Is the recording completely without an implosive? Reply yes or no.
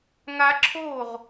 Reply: yes